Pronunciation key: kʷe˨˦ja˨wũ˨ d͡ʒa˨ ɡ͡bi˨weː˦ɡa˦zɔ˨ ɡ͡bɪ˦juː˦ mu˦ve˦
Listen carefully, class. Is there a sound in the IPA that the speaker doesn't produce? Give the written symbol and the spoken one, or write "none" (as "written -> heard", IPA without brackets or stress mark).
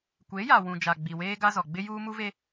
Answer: none